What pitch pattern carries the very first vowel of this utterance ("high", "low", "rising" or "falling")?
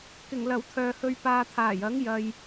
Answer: low